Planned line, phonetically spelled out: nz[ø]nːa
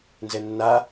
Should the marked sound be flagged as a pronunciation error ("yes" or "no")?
yes